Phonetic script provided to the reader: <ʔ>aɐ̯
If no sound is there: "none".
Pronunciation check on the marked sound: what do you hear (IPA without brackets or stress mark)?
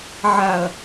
ʕ